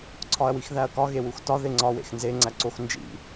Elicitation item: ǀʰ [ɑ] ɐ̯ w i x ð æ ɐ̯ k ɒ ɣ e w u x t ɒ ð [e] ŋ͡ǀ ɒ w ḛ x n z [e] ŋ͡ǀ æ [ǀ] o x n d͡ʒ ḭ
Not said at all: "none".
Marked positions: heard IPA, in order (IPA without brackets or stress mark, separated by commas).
ɒ, e, e, ǀ